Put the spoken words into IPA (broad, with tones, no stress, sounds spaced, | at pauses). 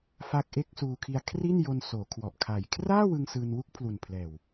f a˦˥ k̚ ʔ e˦˥ k̚ s uː˧ kʰ i˧ a̯ kʰ r i˥˩ n j o˧ n s oː˩˦ kʰ w ɔ˨˩ ʔ kʰ a˨˩ j kʰ r aː˥˩ w ɯ˧ ŋ s ɯː˧ n w u˥˩ k̚ pʰ l u˨˩ n pʰ l ɛː˨˩ w